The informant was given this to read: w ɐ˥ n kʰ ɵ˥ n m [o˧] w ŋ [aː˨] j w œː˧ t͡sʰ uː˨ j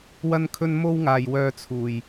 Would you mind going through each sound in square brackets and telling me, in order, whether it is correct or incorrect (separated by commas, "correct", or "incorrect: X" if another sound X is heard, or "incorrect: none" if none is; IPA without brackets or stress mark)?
incorrect: o˥, incorrect: aː˧